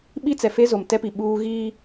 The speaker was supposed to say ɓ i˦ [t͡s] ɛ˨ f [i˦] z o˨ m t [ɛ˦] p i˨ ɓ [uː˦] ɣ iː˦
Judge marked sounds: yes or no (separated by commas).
yes, no, yes, yes